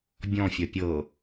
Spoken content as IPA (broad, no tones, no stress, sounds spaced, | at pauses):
bʲ ɔ̃ fʲ ʌ pʲ ɤ